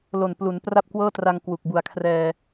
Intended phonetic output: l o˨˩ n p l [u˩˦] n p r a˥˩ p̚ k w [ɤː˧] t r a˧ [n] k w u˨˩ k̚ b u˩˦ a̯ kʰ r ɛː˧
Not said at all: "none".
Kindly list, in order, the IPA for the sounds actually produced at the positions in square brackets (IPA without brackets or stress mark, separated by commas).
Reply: u˩˦, ɤː˥˩, ŋ